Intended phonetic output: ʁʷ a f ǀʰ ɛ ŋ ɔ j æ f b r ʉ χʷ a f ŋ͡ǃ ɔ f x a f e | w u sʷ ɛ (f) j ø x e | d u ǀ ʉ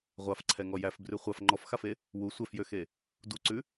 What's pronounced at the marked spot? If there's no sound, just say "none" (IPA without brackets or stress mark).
f